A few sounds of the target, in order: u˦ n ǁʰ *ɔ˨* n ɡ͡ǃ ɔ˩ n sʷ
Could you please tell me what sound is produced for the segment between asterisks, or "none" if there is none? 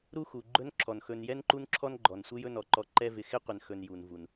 ɔ˥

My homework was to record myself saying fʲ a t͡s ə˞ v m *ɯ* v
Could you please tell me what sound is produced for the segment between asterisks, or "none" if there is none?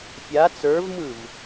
ɯ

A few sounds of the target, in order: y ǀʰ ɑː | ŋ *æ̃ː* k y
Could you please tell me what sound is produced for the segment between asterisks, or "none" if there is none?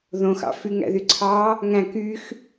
æ̃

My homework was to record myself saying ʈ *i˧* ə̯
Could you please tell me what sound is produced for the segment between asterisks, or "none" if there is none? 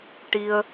i˧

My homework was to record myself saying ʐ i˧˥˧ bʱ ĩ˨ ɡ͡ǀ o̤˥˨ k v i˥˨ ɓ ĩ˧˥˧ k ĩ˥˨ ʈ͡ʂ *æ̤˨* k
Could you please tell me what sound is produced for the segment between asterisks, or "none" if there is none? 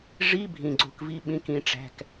æ̤˧˥˧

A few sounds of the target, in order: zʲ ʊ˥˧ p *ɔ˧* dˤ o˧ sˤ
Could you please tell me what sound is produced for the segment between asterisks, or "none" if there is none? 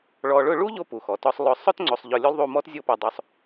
ɔ˧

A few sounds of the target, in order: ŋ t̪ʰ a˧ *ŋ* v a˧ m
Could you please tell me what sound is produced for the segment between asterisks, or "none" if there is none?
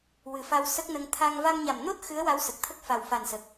ŋ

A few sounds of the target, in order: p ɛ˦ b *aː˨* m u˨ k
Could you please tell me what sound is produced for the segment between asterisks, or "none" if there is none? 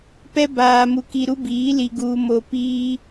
aː˨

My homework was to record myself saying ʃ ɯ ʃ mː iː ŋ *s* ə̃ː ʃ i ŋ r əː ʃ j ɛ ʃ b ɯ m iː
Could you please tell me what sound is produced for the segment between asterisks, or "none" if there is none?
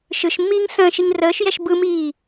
s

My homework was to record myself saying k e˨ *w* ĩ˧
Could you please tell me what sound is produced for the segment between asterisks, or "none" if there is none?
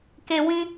w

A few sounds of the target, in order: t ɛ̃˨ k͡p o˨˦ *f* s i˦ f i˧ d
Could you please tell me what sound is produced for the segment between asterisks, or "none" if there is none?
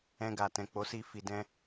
none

